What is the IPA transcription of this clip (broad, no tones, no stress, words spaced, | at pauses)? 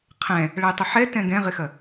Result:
qʰɛ̃ | ɭʌjtˤɪħɛ tɛ̃ɡɛ̃ʁɪxɐ